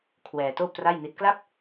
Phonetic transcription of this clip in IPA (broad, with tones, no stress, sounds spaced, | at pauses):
kʰ w ɛː˧ t oː˥˩ p̚ t r a˥˩ j n i˦˥ t̚ k l a˥˩ p̚